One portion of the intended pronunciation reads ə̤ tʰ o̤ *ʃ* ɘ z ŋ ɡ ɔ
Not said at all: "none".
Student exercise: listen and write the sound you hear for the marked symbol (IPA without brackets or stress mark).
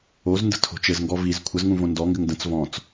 t͡ʃ